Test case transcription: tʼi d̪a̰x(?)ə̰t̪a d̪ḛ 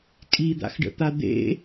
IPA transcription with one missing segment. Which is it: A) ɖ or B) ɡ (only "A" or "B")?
A